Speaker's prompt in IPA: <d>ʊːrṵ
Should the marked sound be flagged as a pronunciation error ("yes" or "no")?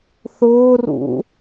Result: yes